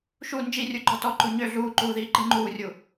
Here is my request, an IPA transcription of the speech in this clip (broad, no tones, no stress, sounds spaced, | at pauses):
ʃ u n d͡ʒ i rʲ u ɡ͡ǃ ɔ t ɔ ǃ u ɲ ø ɮ uː ǃ uː ð iː ǃ ɨ ŋ͡ǃ uː rʲ u